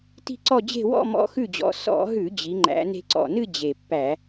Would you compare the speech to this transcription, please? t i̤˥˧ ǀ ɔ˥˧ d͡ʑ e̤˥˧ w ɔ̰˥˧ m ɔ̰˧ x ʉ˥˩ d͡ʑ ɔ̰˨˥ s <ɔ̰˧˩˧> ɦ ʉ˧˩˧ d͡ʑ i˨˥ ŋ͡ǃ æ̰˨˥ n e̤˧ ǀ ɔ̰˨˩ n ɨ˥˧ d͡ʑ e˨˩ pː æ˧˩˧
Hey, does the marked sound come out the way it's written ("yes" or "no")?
yes